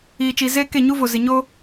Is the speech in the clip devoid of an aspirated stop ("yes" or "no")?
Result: yes